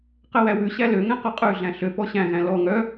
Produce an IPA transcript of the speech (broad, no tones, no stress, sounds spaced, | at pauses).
q ɛ w æ w ʉ ɕ æ l ø ŋ ɛ̃ q ɔ qʼ ʉ ɮ æ̃ ɬ ø p ɔ ɕ æ̃ ɣ æ̃ l ɔ ŋ œ